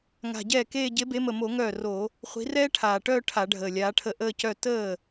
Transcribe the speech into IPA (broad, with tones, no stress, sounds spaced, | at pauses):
ŋ a̤˨˩ ɟ ɛː˥˩ k eː˥˧ ɟ e˨˦ b e˨˦ m ə˨˩ m o˧˩˧ ŋ œː˥˩ r o˧˩˧ | χʷ i̤˨˦ r ɛː˥ ʈʰ aː˨˩ ʈ œː˥˧ ʈʰ a˧˩˧ ɖʱ əː˨˩ lʲ aː˨˦ ʈʰ ə˥˩ ʔ əː˥˧ c œ˥˧ t əː˥˩